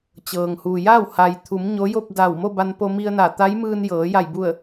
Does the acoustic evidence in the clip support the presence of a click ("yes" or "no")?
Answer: no